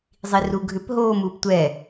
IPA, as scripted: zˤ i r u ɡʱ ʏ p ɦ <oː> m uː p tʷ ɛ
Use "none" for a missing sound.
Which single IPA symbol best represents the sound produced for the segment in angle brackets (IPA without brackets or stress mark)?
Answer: oː